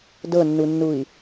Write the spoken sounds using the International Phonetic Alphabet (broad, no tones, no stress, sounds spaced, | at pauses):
d ɤ nː u nː u i̯